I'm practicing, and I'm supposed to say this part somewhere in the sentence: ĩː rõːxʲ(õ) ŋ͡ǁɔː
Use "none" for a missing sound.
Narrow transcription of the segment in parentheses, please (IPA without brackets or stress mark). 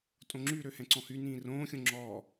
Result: õ